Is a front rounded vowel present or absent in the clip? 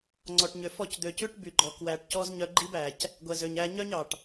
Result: present